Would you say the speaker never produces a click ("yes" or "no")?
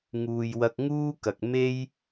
yes